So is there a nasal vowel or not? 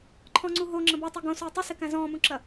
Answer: yes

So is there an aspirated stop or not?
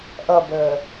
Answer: no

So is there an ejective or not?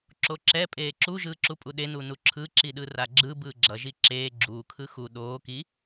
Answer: yes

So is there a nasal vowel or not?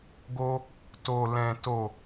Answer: yes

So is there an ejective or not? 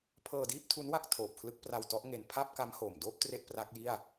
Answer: no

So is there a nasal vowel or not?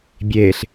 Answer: no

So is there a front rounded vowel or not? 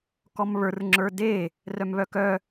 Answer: yes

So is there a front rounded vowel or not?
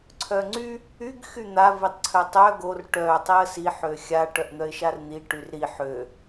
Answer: yes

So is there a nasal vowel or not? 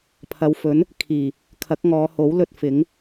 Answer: no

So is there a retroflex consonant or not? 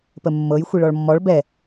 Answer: yes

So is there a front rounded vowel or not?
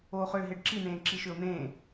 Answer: yes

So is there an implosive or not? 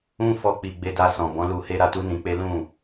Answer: no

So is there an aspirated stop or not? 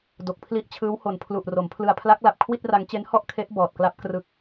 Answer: yes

